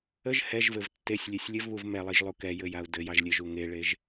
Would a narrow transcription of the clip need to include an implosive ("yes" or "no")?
no